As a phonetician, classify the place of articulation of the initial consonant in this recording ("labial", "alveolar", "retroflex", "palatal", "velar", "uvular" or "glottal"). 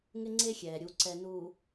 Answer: velar